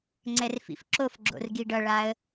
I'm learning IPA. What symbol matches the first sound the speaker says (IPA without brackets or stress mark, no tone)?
ŋ͡ǀ